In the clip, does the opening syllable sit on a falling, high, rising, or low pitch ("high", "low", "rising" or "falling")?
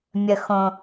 low